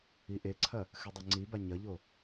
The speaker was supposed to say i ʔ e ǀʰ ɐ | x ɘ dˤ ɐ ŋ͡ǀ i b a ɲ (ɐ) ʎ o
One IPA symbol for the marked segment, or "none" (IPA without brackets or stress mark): ɐ